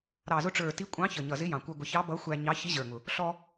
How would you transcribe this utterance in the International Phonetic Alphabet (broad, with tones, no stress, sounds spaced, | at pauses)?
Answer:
ɾ ɑ˨˩ z ʊ˧ ʈ͡ʂ ə˞˨˩ t i˧˥ kʷʼ ɑ̃˧˥ ç ə˨˩ ɲ ʌ˨˩ z ɪ˧˥ j ɑ̃˨˩ kʷ ə˞˧ ɡʷ ɪ˨˩ ç ɑ˧˥ b ʌ˧˥ xʷ æ˧ ɲ ɑ˧˥ ç i˧˥ ʑ ə˞˨˩ ŋ ʊ˨˩ | ɬ ɔ˧